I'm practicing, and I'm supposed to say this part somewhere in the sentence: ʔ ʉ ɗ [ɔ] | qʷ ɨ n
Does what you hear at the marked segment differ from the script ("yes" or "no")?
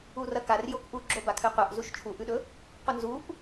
yes